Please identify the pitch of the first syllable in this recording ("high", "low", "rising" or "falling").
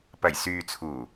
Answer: low